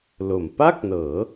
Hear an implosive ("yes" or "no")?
no